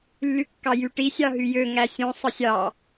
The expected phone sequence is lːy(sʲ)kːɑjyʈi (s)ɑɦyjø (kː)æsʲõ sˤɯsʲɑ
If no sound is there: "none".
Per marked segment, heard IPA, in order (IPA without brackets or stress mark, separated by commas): none, sʲ, ŋ